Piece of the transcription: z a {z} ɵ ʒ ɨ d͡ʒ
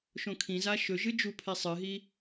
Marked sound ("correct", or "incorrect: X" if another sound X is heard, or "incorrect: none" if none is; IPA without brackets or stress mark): incorrect: ʃ